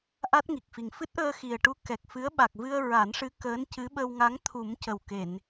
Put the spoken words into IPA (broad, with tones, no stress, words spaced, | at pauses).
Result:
ʔa˦˥t̚ŋi˨˩k̚fi˨˩ŋ fɨ˦˥t̚ʔəː˧xi˨˩ə̯ʈu˧ kɛ˨˩k̚fɨ˧˥ə̯ ɓa˨˩k̚vɨ˧ə̯ ɹa˨˩˦nʂɨ˧˥ kəː˧˥ncɨ˧˥ɓə˧wŋa˧˥ŋ t̪ʰu˨˩˦m cə˨˩wke˨˩˨n